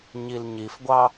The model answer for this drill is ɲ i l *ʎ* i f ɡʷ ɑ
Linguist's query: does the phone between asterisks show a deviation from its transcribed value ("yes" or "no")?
yes